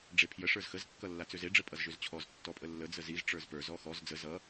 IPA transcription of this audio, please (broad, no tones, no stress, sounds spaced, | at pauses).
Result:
ɖ͡ʐ e pʰ j ə ʂ ə˞ z x ə z kː ʌ lː a t͡s ø z e ɖ͡ʐ ə pʼ ʌ z ʒ ø z t͡ɕʰ ɔ z tː ɔ pʼ ə lː ə d͡z ə z i z ʈ͡ʂ ə˞ z p ə˞ z ɔ x ɔ z d͡z ə z ʌ